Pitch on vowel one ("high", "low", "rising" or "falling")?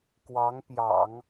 rising